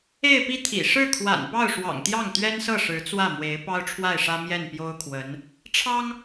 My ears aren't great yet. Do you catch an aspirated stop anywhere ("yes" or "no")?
yes